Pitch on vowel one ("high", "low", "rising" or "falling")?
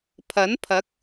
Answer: rising